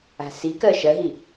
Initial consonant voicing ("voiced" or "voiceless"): voiceless